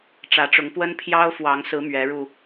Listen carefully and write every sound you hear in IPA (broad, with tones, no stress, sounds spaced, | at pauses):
ʈ͡ʂ ä˨˦ ʈ͡ʂ ʊ˨˦ ŋ p w ə˦ n pʰ j ɑ˦ ʊ̯ f w ɑ˨˦ ŋ s ɹ̩˨˦ m ɥ ɛ˨˦ ɻ u˨˩